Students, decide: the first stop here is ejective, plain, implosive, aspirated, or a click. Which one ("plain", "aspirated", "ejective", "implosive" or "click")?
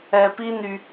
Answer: plain